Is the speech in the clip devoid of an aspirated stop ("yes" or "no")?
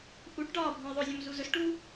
yes